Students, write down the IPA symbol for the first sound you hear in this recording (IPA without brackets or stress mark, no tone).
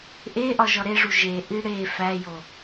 ʔ